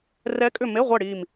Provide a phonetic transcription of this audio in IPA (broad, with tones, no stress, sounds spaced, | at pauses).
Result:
r ɛ˧˥ kʼ ʏ˦˨ m e˧˥˧ ʁʷ ɛ˦˨ ɽ i˦˨ m